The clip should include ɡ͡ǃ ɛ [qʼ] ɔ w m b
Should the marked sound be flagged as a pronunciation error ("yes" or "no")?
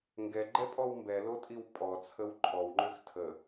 yes